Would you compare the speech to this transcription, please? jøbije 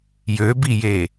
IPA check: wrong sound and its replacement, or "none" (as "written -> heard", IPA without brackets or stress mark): none